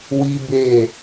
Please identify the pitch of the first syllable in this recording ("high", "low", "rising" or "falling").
high